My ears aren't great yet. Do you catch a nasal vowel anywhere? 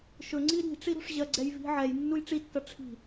no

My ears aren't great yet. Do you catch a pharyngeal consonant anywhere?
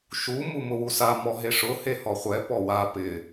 no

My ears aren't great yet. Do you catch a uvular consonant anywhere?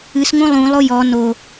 no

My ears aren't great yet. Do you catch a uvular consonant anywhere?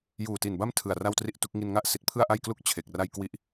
no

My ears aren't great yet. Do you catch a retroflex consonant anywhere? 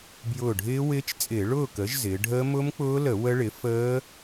yes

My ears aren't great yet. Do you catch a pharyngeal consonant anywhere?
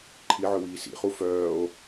yes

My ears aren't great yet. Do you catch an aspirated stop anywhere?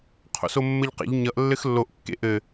yes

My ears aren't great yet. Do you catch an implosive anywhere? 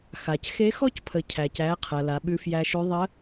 yes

